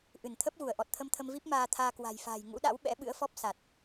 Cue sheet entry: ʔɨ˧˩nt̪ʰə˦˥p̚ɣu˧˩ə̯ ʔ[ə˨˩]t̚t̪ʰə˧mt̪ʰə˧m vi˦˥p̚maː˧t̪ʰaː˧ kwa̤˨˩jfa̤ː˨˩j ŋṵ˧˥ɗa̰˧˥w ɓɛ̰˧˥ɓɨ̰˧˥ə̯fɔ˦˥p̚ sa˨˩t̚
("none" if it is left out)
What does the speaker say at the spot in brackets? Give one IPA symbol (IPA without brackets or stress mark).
ɔ˨˩